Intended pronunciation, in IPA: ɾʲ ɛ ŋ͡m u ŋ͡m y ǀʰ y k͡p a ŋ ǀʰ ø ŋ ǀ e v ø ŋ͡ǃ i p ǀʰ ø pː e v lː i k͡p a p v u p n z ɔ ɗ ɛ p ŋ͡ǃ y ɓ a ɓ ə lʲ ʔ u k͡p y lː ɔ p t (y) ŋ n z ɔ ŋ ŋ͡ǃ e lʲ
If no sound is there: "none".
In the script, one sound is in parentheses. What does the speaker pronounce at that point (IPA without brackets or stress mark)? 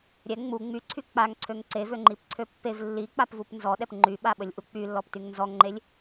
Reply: y